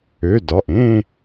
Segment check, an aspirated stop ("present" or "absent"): absent